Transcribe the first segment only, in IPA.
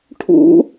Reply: ʈʰ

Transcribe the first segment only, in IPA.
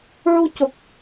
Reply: ɹ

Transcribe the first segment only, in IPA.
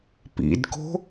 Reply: p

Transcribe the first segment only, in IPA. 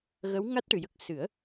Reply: ɣ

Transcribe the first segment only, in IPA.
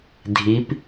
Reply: dʱ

